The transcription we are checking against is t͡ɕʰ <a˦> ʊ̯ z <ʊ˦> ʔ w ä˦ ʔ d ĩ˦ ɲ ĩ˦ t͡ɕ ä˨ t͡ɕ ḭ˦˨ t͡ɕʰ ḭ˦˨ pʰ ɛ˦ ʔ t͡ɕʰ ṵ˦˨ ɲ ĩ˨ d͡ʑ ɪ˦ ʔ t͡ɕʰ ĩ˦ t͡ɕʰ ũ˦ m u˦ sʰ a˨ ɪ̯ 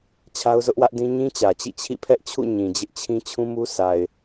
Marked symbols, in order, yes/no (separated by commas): yes, yes